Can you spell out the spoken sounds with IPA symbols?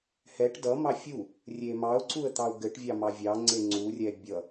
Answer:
h ɛ ʈ d ʌ m ɑ fʲ u | rʲ e m ɑ ʊ̯ ǀ u ə̯ t̪ ɑ ʊ̯ ɡ ɘ ʈ vʲ ɑ m ɑ vʲ ɑ ŋ͡ǀ e ŋ͡ǀ u rʲ ɛ bʲ ʌ

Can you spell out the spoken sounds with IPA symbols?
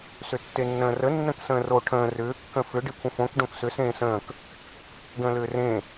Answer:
s ʏ tː e nː ə̃ː r ə nː ə̃ k s ə̃ː r o ʈʰ ə̃ː r ʏː kː ə̃ f ʏ ɖ e kʷʰ ə̃ f õ k ɖ õ k s ʏ s ẽː s ə̃ː k | ɡ ə̃ː l ʏː r ẽ

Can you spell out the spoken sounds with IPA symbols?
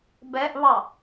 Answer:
b ɛ ʔ β ɑ

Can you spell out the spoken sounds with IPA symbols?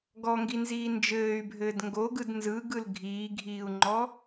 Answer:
ɡ ɔ ŋ ɡ i n z iː n d͡ʒ ɘː y̯ bʱ ɘː d ŋ ɡ o ɡ ɯ d n z ɯ ɡ ɯ l ɡʱ iː ɡʱ iː u̯ ŋ͡ǃ ɔ

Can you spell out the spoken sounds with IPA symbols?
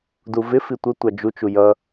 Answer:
d u v ɪ f i tʷ ə tʷ ɑ d͡ʒ u t͡ʃ u j ʌ

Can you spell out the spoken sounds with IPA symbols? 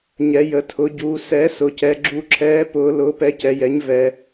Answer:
ɲ ɛ˩˧ j ə˩˧ tʰ ʊ˩˧ ɟ uː˩˧ s ɛ˩˥ s ʊ˩˧ c ɛ˩˧ ɡ͡ǁ u˩˥ ǁʰ ɛː˩˥ p ʊː˩˧ l ʊː˩˥ p ɛ˩˥ c ɛ˩˧ j ɛ˩˥ ɲ v ɛ˩˧

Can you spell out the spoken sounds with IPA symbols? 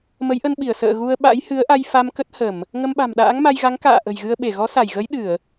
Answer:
m ə˨˦ j ʔ ə˧ n ɓ i˧˩ ə̯ s ə̰ː˧˨ ɣ u˧ ə̯ ɓ a̰˧˥ j h ɨ˨˦ ə̯ ʔ a˧ j f a˧ m k ə˦˥ t̚ h ə˧˩˨ m | ŋ ə˧ m ɓ a̤˨˩ m ɗ a̰ː˧˥ ŋ m a˧ j ɣ a˨˦ ŋ k a̰ː˧˨ ʔ ə̤˨˩ j ɣ ɨ˧ ə̯ ɓ e˧˩ ɣ ɔ˨˦ s a˧˩ j ɣ ə˨˦ j ɗ ɨ˧˩˨ ə̯

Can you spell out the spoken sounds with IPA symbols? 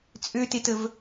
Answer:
t͡sʼ ø t e t ə v

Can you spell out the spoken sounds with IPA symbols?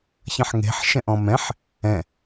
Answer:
ç ɐ̃ ħ ŋ e̤ ħ ʃ ɛ̃ ʔ ɔ̃ m ɛ̃ ħ | ɛ̃

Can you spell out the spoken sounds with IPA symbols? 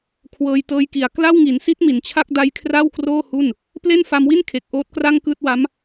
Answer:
kʰ w ɤː˧ j t ɤː˦˥ j k i˨˩ a̯ k l a˥˩ w ŋ i˩˦ n s i˦˥ t̚ m i˩˦ n t͡ɕʰ a˥˩ k̚ d a˦˥ j kʰ r a˥˩ w k r oː˥˩ h u˥˩ n | p l e˥˩ n f a˧ m w i˥˩ n kʰ e˨˩ k̚ ʔ oː˦˥ t̚ k r a˥˩ ŋ k ɯː˥˩ t̚ w a˦˥ m

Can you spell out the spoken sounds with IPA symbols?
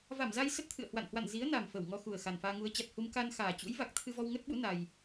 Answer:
v a˧˩ m z a˧ j s ə˦˥ t̚ t̪ʰ ɨ̰˧˨ ə̯ h w a̰˧˨ n h w a̰˧˨ n z i˨˦ ə̯ n a˨˩ m f ə˧˩ w ŋ ɔ˧ x u˨˩ ə̯ x a˨˩ n f aː˧ ŋ u˨˦ ə̯ t͡ɕ a˨˩ t̚ h u˧ m k a˧ n x aː˨˩ t͡ɕ ṵ˧˥ j v a˨˩ k̚ t̪ʰ ɨ˧ v ɔ˧ w ŋ ə˦˥ t̚ ɓ ṵ˧˥ n a˧ j

